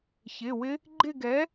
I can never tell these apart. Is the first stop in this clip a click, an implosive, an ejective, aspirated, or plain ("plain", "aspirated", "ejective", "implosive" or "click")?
click